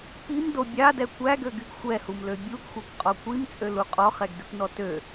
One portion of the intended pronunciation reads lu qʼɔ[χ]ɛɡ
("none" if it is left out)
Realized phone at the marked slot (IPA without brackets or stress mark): χ